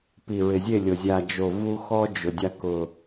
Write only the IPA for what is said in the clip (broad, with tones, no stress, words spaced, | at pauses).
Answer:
pi˨ɹɪ˨zʲe˦˨lʲo˨ zʲa˨d͡ʒo˨ vu˦xɔ˦d͡ʒʊ˨ dʲa˦kʊ˨